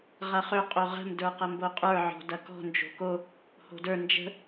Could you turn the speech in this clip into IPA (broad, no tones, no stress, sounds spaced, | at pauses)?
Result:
ʁ ɐ χ ø qʼ o ʁ ə̤ m d ə˞ q ɐ m b o qʼ ə˞ ʕ ɔ̤ d ɐ k ɔ̤ n d͡ʒ o̤ k o | h o̤ d ə˞ n d͡ʒ ə̤